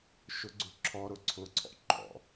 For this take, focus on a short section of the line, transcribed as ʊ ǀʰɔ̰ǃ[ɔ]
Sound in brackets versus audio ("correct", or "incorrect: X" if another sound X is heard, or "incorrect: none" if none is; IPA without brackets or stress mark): incorrect: ɔ̰